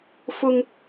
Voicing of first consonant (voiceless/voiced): voiceless